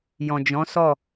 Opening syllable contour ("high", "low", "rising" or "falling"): low